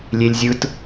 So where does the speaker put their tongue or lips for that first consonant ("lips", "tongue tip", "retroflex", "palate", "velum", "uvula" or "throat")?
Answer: tongue tip